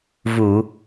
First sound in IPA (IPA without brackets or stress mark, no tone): v